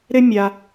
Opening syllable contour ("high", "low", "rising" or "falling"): high